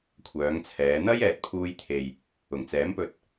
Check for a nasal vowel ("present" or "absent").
absent